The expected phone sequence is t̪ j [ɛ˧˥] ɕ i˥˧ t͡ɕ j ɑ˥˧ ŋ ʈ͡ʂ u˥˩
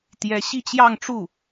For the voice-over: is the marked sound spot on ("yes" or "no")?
yes